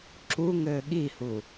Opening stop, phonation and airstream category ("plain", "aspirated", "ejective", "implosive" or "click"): click